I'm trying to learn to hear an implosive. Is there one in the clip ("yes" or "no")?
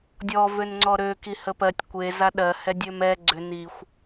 yes